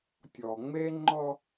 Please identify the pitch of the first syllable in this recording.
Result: low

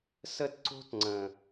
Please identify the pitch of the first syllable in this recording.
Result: high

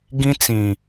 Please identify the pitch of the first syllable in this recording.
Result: high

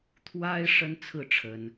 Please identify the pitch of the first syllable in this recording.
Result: high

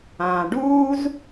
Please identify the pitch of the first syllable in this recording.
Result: low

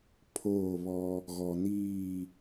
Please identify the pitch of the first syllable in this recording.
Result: falling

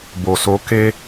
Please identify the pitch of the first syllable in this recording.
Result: low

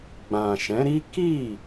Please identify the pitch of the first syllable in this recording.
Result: low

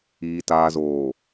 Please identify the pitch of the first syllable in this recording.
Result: low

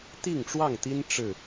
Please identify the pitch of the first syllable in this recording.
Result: falling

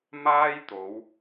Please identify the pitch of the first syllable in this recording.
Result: high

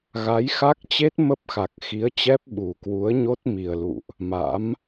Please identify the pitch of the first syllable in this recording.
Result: rising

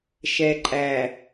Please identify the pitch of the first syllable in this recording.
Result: low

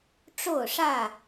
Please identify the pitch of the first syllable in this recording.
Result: falling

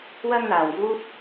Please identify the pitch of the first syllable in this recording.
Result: high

